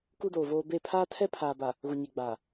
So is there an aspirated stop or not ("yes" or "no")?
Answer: yes